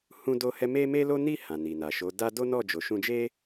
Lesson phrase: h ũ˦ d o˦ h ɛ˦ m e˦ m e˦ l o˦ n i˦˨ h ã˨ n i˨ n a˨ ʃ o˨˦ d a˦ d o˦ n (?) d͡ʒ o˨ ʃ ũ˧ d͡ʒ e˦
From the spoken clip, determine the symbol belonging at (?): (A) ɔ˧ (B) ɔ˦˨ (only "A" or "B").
B